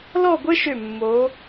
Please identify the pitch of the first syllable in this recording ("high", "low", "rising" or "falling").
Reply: falling